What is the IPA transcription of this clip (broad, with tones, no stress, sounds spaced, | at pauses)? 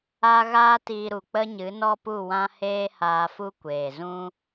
a˧ ɣ aː˦ t iː˧ ɾ u˨ k͡p ə˦ ɲ ɨ˨˦ n ɔ˦ p u˦˨ w ã˦ h eː˦ h aː˧ f u˦ kʷ eː˨ z ũ˦